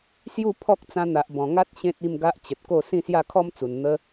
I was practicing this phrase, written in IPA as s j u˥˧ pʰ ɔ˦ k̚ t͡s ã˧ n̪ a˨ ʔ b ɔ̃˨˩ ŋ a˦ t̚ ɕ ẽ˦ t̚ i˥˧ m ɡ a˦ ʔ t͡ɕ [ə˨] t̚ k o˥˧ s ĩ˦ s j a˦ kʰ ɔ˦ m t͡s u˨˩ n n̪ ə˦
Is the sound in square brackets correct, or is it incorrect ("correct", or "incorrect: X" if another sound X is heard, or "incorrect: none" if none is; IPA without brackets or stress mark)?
correct